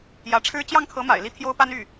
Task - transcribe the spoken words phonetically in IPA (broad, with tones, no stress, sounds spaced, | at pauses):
j ä˧˥ ʈ͡ʂʰ ɻ̩˥ t͡ɕ j ɑ˥˩ ŋ kʰ ɤ˧˥ m a̰˨˩ ɪ̯ l i˥˩ t̪ʰ j o˥ ʊ̯ p a˥ n y˥˩